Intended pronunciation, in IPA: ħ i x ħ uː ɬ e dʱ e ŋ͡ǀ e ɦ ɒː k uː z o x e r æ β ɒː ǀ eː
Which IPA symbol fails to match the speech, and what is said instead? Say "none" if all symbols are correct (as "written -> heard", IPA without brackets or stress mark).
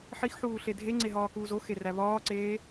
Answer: none